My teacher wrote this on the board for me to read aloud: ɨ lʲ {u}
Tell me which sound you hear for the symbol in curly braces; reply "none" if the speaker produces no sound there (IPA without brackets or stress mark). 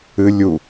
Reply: u